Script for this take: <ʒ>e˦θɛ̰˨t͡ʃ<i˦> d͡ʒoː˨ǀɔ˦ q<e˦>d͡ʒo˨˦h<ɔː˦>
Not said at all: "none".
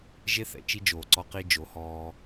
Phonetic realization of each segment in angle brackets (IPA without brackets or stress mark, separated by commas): ʒ, i˦, i˦, ɔː˦